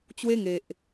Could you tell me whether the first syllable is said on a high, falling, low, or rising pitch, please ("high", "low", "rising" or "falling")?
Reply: high